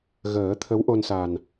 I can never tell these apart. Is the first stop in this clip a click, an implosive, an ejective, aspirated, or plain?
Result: aspirated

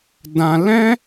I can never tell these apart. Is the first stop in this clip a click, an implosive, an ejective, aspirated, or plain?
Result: plain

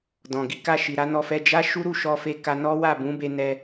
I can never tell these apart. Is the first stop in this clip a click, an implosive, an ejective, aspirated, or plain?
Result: plain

